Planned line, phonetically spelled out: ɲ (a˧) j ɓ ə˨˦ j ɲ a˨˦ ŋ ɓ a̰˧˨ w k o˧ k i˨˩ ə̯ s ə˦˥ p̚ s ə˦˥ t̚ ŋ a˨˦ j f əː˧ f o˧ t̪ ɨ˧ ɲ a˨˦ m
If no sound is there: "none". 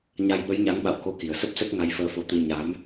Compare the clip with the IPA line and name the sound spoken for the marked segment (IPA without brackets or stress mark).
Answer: a˧